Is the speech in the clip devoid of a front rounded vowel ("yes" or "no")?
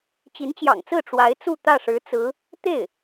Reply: yes